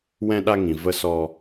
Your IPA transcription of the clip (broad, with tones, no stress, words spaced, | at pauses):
wɛ̃˧ɗa˧ ŋĩ˨ və˧sɔ˧